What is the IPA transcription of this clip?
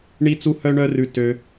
ɳi˥t͡su˥hœ˥ɳœ˥ rʉ˥tø˥

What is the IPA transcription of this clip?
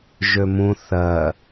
ʒømũ θɜ

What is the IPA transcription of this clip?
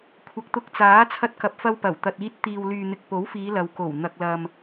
kʷʰɐ˨k̚t̪ʊ˧k̚t͡saː˨˥ t͡sʰɐ˧t̚kɐ˨p̚fɐ˧wpɐ˨˩w t̪ɐ˨t̚iː˧t̚ t̪iː˨wlyː˨n̪ɪ˨k̚ po˨˥wfiː˨˧ lɐ˨w ko˨˩wn̪ɐ˨k̚lɐ˨m

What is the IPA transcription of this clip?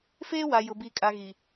feː˦wa˨ jʊ˨ bi˨kʼa˨ ɣi˨

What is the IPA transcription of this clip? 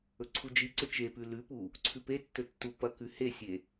ɵǀʰud͡ʒiǀɵ t͡ʃepʉ lʉpu | ǀʰʉpetːɵ tːupɐkʉ hesʲe

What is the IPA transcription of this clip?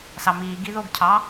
sɑmiːɡi ðoɡcʰɑ

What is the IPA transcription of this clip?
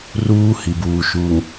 ruː˦ hi˨buː˨ʃuː˨ŋ

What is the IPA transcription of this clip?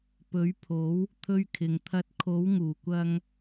pɵ˨˥ɥpʰo˨˥w | t̪ʰɵ˥ɥkʰɪ˨˧ŋ t̪ʰɐ˧t̚kʰo˨˥wŋuː˨˩kʷɐ˧ŋ

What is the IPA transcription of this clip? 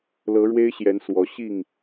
lɤ˨˦ɻwe˦ɪ̯ɕjɛ˨˦n swɔ˨˦ɕi˥˨ŋ

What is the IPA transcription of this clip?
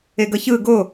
eɡʌçɯ ɡo

